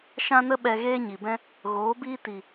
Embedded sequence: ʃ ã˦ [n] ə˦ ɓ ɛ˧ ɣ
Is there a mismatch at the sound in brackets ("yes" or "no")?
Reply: no